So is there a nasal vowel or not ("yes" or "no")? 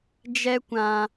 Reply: yes